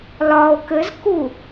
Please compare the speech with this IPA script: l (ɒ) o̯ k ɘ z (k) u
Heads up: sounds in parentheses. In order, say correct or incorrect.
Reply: correct, correct

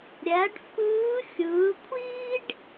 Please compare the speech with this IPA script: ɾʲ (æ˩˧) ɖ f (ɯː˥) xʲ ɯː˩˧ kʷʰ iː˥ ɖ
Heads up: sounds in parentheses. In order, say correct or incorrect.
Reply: correct, incorrect: ɯː˧˥

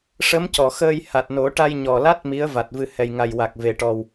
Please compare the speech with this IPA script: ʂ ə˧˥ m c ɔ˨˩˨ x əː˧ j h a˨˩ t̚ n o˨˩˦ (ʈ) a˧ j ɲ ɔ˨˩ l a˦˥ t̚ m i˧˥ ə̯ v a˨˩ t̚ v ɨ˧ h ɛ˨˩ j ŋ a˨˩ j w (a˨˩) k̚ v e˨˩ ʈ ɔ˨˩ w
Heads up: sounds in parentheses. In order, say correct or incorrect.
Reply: correct, correct

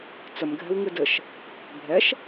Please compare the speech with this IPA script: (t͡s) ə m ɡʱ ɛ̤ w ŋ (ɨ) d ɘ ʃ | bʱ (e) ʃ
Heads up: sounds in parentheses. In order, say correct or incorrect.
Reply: correct, correct, incorrect: ɛ

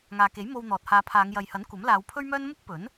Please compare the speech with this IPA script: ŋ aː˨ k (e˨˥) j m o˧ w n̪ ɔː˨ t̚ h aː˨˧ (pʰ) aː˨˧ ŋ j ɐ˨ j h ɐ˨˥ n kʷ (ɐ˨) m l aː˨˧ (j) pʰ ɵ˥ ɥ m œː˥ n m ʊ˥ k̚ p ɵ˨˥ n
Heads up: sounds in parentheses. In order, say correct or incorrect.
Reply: correct, correct, incorrect: ɐ˨˥, incorrect: w

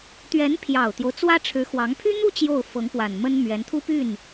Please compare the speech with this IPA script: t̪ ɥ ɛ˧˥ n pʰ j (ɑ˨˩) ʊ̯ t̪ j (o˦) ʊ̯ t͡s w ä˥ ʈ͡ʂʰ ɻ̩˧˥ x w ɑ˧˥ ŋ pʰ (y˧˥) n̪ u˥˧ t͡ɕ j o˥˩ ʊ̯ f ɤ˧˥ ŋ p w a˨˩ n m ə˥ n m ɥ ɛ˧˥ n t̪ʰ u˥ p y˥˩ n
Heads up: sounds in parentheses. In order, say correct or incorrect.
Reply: correct, correct, incorrect: y˥

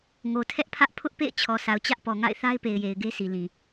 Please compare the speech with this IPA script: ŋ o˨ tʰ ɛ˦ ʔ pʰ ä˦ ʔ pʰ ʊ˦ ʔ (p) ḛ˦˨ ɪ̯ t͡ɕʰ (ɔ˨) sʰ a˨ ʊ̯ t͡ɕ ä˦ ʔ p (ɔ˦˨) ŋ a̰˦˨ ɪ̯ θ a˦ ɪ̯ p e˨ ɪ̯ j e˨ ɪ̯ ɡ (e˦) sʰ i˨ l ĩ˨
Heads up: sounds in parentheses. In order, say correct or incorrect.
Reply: correct, correct, incorrect: ɔ˨, correct

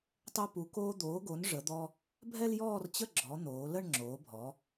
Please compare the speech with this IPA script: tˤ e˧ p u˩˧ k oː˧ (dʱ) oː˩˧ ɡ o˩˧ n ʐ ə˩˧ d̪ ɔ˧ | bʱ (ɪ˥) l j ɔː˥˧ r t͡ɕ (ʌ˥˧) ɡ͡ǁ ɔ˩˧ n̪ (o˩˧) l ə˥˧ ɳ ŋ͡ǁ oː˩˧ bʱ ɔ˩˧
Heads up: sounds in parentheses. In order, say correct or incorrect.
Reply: incorrect: d̪, incorrect: ɛ˥, incorrect: ə˥˧, incorrect: oː˩˧

